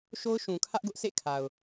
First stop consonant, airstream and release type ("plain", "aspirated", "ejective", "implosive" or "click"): aspirated